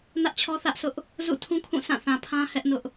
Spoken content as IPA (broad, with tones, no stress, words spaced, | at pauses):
nä˦ʔt͡ɕʰɔ˦θä˦ʔsʰʊ˦ʔ | zṵ˦˨tʰũ˦kʰũ˦˨ sã˦˨θã˨pʰã˦ hɛ˦ʔnʊ˦ʔ